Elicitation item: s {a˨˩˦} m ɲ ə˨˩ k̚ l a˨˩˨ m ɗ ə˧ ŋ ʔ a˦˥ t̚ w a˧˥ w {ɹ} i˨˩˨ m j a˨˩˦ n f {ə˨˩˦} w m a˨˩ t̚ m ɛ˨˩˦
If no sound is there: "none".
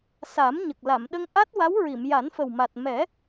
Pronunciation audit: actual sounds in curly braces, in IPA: a˨˩˦, ɹ, ə˨˩

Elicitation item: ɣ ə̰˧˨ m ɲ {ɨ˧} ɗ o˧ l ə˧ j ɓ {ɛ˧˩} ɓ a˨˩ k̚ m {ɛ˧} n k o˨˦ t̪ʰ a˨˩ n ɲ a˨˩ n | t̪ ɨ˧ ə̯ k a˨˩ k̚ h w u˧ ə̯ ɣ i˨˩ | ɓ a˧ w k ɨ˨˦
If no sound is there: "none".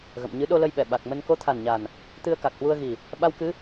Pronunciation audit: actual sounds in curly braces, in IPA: ɨ˨˦, ɛ˧˩, ə˧

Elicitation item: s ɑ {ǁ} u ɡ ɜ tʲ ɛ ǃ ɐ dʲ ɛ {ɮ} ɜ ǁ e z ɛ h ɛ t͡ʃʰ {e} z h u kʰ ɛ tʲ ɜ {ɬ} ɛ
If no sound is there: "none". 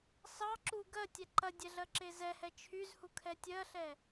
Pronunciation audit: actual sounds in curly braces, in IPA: ǁ, ɮ, y, ɬ

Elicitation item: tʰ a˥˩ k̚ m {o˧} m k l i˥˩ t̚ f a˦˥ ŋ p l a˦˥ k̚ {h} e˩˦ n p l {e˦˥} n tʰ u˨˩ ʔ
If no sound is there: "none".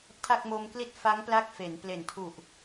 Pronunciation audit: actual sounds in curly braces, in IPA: o˧, f, e˨˩

